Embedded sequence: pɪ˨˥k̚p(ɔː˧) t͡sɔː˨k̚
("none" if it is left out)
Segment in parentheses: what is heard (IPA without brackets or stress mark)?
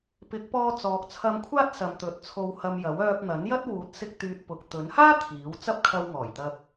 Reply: ɔː˧